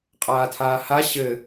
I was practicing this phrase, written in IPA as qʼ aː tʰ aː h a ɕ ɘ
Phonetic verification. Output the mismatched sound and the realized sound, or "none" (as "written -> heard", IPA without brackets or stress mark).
none